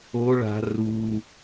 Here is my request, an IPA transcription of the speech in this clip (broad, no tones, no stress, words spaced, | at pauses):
o ɭa̤ ru